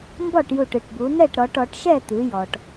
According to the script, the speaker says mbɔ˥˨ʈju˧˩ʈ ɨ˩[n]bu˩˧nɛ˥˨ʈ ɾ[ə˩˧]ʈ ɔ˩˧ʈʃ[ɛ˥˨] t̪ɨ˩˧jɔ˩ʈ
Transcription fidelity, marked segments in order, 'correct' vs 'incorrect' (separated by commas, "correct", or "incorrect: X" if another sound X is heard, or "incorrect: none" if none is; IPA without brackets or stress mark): incorrect: ʈ, incorrect: ɔ˩˧, correct